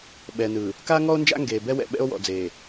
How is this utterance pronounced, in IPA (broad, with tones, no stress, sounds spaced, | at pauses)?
ɓ ɛ˨ n ɯ˨ | k a˦ ŋ ɔ˦ o̯ n d͡ʒ a̰˦ ŋ ɡ eː˨ b ɛ˦ w ɛ̰˨ ɓ ɛ̰˦ o̯ w ɔ̰˨ d͡z eː˨